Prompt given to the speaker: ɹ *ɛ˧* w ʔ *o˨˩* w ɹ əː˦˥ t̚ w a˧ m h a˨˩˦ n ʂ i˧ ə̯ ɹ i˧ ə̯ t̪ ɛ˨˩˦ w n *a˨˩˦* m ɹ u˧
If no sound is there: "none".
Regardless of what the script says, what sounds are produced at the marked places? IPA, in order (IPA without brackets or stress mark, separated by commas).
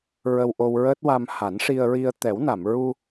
ə˧, o˧, a˨˩˨